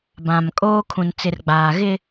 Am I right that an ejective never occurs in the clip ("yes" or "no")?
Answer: no